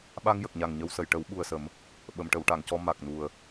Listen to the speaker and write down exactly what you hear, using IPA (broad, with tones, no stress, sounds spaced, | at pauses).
ɓ a˧ ŋ j ə˨˩ k̚ ɲ a˨˩ ŋ ɲ ə˧ w s ə˨˩˨ j ʈ ə˨˩˦ w ɓ u˨˩ ə̯ s ə˨˩˦ m | ɓ ə˨˩˨ m ʈ ə˨˩˨ w ʈ a˨˩˨ ŋ c ɔ˧ m a˨˩ k̚ n u˨˩ ə̯